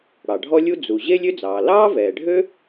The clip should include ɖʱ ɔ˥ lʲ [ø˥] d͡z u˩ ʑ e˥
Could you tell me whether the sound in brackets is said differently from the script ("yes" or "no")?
yes